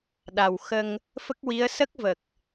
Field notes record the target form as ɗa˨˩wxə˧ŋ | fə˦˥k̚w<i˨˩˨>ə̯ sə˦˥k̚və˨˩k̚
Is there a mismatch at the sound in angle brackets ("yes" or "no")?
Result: yes